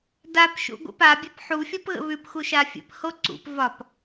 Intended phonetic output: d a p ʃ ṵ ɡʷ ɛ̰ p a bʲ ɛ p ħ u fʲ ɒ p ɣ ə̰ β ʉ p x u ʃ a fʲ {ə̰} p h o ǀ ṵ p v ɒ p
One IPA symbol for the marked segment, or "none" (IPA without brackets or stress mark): ə̰